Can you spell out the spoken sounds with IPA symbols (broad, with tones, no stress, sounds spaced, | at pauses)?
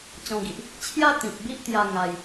t͡ɕ ɔ̃˧ ɡ i˨ ʔ | t͡ɕʰ j a˦ t̪ ĩ˨ p̚ b i˦ ʔ t̪ j a˧ ŋ a˧ j